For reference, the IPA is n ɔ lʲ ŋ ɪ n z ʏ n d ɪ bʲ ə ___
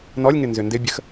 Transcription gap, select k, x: x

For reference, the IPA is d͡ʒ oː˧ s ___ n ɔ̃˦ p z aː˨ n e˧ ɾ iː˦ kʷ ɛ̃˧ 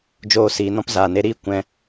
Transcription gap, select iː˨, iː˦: iː˨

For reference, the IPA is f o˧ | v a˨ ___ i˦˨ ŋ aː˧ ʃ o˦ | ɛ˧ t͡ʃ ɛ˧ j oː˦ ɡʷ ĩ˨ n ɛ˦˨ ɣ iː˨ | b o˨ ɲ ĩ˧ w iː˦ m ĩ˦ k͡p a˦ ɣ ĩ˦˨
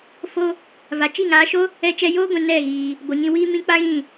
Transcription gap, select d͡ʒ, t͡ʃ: t͡ʃ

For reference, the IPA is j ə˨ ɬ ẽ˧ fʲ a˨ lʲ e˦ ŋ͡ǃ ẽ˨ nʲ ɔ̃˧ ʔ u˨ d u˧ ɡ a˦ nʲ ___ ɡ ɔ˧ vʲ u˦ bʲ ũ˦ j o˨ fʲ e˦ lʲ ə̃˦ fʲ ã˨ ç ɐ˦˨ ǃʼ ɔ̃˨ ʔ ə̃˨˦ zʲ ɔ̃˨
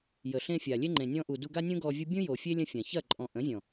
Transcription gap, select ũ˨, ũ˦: ũ˦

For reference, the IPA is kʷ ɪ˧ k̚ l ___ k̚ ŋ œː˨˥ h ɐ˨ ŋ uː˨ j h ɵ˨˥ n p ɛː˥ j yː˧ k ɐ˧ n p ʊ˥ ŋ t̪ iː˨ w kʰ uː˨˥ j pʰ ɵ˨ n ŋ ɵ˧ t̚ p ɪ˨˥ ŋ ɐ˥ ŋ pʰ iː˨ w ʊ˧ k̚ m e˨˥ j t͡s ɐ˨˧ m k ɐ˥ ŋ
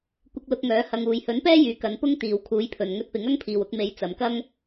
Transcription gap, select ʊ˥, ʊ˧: ʊ˧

